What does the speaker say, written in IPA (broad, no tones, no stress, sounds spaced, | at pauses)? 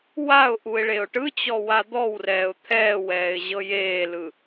w a ʊ̯ ʔ u ɪ̯ ɭ e ʊ̯ ʈ ɯ t͡ɕ ɔ w a d̪ ɔ w r ɛː ʊ̯ t̪ʰ ɛː w ɛː ɪ̯ ʑ ɤ j eː l ɯ